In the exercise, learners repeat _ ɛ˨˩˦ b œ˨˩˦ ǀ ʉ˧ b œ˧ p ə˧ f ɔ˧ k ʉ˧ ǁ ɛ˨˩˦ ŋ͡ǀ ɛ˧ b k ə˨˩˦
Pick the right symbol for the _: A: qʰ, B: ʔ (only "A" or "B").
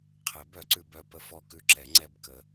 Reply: A